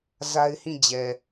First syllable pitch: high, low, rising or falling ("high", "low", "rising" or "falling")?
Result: high